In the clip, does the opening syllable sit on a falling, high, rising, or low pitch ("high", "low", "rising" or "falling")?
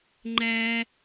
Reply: high